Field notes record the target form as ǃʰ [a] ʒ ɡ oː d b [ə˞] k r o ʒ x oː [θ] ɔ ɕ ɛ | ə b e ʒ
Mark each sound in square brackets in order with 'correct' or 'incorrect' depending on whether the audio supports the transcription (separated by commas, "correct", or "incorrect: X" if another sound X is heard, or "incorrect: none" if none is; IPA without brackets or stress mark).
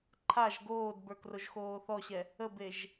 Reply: correct, correct, correct